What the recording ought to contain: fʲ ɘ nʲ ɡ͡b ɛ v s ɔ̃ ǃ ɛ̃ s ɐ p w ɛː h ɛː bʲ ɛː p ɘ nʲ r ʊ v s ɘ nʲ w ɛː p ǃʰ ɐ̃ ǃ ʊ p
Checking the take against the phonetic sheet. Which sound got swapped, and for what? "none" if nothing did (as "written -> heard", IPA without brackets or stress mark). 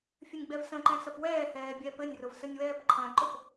ɔ̃ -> ə̃